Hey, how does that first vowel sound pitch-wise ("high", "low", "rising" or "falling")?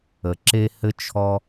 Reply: low